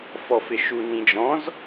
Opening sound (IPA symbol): f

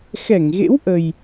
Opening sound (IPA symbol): x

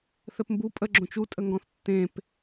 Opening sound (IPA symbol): θ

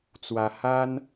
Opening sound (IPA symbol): t͡s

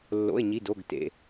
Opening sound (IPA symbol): lː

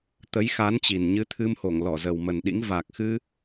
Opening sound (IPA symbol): t̪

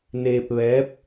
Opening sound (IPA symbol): n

